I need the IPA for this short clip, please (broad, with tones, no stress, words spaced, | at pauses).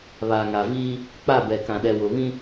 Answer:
βaː˨ŋa˨ viː˦ | k͡pa˦˨bɛ˨kã˨ɗɛ˨ wʊ˨βĩ˦